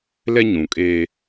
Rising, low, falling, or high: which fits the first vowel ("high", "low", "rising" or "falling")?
high